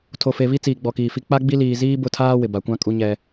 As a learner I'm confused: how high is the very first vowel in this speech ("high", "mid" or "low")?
mid